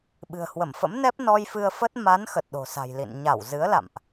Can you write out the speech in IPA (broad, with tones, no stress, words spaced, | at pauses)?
ɓɨ̤˨˩ə̯hwə˧˩mfə̰˧˥mnɛ˦˥p̚ nɔ˧jfɨ˧ə̯fə˦˥t̚ ma˨˦n xə˨˩t̚ɗo̤˨˩sa̤˨˩jlḭ˧˨n ɲa˧˩wzɨ˨˦ə̯la̰˧˨mʔ